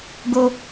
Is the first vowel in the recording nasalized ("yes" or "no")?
no